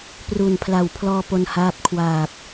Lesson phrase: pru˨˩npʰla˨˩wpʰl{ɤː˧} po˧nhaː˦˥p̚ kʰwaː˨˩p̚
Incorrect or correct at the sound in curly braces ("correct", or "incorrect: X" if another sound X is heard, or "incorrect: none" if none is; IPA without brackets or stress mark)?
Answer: incorrect: ɔː˧